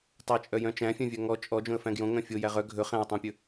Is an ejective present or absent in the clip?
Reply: present